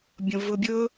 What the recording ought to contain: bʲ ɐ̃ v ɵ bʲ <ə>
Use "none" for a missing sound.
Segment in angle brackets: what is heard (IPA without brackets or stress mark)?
ɵ